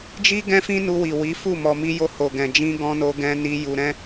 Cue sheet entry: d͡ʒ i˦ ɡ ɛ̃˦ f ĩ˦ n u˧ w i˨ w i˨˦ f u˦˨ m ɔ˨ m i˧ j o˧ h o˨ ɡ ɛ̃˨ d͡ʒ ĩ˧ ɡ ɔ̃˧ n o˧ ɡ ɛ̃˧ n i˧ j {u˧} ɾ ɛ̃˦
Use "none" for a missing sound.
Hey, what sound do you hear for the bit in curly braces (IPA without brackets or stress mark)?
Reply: u˧